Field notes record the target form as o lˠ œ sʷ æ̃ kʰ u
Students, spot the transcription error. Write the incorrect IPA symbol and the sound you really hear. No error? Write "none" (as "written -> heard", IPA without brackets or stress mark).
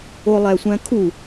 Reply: œ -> æ